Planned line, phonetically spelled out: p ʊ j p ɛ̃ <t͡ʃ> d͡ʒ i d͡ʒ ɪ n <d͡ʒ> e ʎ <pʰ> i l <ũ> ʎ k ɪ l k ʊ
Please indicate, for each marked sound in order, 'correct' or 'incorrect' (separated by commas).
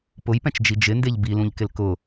correct, incorrect, incorrect, correct